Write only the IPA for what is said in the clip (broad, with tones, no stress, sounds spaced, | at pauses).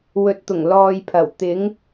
w ɵ˨ t̚ t̪ ʊ˨˩ ŋ l ɔː˨ j pʰ ɐ˨˩ w t̪ ɪ˨˧ ŋ